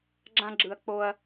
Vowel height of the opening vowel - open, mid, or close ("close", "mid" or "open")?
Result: open